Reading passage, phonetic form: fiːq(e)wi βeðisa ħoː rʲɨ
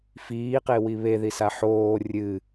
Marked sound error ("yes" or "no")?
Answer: no